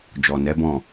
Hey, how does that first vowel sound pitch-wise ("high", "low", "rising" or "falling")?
low